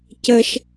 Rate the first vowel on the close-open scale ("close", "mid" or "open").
mid